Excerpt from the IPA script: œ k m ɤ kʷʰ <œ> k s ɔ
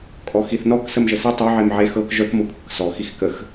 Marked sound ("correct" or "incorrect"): incorrect